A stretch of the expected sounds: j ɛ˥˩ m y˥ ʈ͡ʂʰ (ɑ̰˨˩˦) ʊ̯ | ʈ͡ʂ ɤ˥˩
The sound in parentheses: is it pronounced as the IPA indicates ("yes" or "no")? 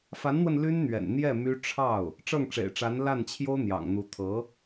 no